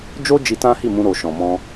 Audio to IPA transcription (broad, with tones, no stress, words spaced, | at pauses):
d͡ʒo˦ d͡ʒi˧tã˦hi˦˨mũ˧ ɾo˨ʃɔ̃˨ mɔ̃˧